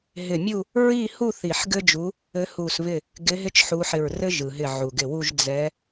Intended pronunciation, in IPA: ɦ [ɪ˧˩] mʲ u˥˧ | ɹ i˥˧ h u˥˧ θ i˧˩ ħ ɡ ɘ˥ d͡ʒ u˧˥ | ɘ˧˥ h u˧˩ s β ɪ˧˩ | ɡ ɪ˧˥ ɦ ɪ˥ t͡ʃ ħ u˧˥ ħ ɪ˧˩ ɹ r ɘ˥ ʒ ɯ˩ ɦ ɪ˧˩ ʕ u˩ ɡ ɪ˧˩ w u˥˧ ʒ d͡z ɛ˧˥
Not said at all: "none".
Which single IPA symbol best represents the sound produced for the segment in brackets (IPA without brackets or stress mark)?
ɪ˧˩